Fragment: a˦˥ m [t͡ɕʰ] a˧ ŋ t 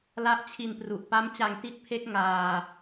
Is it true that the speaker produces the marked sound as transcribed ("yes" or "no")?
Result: no